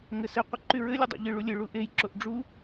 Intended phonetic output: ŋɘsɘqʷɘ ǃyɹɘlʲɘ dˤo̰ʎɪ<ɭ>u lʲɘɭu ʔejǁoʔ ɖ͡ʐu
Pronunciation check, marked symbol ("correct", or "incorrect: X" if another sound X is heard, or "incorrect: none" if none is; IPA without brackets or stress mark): correct